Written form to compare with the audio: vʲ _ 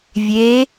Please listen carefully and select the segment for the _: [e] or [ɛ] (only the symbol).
e